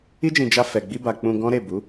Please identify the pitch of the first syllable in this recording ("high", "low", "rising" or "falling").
high